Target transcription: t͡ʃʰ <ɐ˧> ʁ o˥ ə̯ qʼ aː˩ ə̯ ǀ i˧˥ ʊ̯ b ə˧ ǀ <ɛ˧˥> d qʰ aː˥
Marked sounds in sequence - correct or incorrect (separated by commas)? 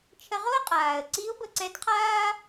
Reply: incorrect, correct